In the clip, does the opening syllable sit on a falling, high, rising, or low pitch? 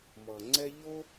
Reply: low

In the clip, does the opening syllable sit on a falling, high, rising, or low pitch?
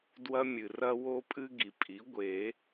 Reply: high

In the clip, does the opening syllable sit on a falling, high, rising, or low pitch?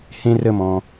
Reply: low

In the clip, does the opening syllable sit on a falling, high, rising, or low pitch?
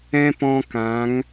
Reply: high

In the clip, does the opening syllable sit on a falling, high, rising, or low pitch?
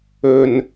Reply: low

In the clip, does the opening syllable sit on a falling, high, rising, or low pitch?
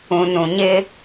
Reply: low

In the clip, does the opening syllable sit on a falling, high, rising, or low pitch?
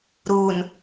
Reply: low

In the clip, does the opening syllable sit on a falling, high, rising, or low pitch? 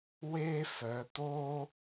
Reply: high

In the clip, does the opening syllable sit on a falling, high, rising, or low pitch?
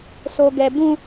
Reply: high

